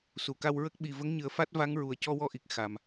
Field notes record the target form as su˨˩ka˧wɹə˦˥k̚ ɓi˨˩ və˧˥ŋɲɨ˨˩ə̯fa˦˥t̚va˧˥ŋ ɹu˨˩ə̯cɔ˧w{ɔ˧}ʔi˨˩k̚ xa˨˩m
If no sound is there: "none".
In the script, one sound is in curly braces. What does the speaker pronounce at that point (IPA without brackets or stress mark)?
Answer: ɔ˧